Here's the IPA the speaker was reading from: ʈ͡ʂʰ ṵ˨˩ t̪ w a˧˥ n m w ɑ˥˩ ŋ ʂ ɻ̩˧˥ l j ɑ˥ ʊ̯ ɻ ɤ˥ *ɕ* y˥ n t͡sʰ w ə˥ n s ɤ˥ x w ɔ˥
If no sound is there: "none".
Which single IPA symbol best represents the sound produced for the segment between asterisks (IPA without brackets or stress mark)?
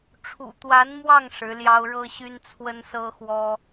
ɕ